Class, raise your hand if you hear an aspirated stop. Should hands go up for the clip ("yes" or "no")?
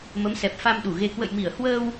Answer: no